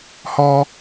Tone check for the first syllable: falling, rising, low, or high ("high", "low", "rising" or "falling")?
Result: high